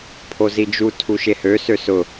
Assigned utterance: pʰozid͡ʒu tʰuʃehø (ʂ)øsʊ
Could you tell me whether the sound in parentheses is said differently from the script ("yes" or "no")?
yes